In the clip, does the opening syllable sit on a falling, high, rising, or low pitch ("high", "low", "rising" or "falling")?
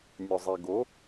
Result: low